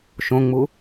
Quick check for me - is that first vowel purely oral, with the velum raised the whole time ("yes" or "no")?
no